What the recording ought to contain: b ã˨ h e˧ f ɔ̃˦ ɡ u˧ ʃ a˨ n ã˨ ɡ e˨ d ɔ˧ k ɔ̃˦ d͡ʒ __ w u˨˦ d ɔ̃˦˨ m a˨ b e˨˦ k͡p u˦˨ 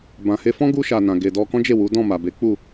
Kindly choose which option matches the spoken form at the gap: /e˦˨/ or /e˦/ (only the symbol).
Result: e˦˨